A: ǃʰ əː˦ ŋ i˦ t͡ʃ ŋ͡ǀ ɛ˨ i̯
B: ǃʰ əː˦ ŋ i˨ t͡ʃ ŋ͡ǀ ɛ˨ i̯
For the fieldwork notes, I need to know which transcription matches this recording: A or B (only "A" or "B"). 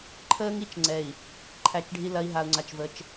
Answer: A